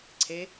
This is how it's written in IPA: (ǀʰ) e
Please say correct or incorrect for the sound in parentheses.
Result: correct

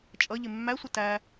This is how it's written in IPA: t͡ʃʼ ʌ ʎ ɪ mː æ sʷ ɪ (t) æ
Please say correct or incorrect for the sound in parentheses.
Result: correct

